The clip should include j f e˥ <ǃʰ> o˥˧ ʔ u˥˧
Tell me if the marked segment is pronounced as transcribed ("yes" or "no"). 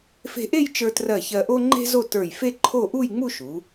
yes